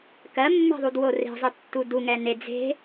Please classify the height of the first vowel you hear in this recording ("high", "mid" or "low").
mid